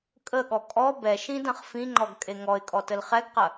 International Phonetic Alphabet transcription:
kʼəɠɔ kʼɔ bɛʃĩdɐ̃χ fĩŋ͡ǃɔɡkʼe ŋɔɪ̯kʼɔtəl χɛɡqɐ

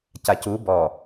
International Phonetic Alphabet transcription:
cacu bɔ

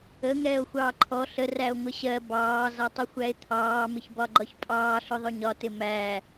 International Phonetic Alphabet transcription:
ə ŋɛːo̯xʷɑːǃʰɔ ɬə ræo̯ŋʷɪɕɜ bɑː zɒtˤʊxʷæe̯t̪ʰɑː mɪçbɒɡ͡ǃɒçpʼɑː ɬʊðˤʊɲɒ tɪmæː

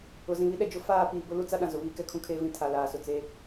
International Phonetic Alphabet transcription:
ʊ˨zĩ˨βi˦ ɗɛ˨d͡ʒʊ˦ faː˦˨ piː˨bʊ˦ lu˦t͡sa˦ ɗã˨zʊ˨βiː˦ kɛ˨kʰũ˦kʰeː˦vĩ˦ tʰa˨laː˨sʊ˨ t͡se˦

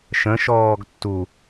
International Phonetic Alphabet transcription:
ʃə̃ʃɔːɡ tːu

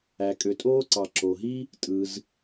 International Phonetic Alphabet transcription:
æ˩kʼø˩tʼoː˥ǀɑ˩ ǁo˩ɦi˥ | tʼɯ˩z

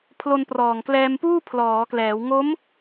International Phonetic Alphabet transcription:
pʰlo˧nprɔː˨˩ŋ klɛː˧mpuː˥˩ pʰlɔː˩˦klɛː˩˦w ŋo˦˥m

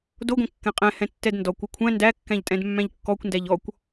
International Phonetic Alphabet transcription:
doɡʷɛ̃ kːɛ̃qʼɛ̃ hɛ̃tːɛdndɔkʷ ukʷʰæ̃ ndækːæ̃ʎtʼɛ̃dmːæ̃ʎ kːɔkʷndæʎ ɔkʷ

